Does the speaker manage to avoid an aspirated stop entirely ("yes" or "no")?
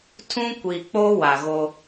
no